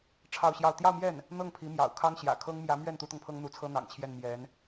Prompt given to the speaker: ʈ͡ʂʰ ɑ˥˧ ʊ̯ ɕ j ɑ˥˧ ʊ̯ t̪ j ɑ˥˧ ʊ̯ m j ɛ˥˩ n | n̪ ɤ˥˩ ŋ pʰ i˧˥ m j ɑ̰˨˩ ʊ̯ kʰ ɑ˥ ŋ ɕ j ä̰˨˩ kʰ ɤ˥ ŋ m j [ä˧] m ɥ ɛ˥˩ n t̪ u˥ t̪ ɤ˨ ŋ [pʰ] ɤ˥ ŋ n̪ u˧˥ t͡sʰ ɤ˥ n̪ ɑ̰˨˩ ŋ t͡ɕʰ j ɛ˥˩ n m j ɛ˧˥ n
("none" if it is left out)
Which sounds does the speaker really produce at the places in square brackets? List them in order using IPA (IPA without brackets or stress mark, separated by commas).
ä˧˥, pʰ